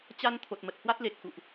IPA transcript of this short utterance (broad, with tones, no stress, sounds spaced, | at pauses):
t͡ɕ a˧ n t̪ʰ o˨˩ t̚ m ə˨˩ t̚ h w a˦˥ t̚ l e˨˩ k̚ x ṵ˧˨ ʔ